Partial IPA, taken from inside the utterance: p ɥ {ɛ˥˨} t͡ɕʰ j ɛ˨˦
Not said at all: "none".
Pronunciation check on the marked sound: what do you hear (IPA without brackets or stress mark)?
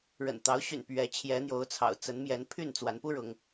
ɛ˨˦